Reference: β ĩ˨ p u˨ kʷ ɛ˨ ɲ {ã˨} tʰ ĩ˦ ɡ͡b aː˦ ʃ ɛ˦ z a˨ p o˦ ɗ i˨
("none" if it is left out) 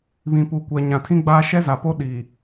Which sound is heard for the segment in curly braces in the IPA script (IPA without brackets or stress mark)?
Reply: ã˨